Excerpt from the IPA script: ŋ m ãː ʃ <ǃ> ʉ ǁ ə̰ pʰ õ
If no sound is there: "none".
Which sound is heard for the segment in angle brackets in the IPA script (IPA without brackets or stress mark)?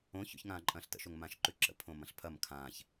ǃ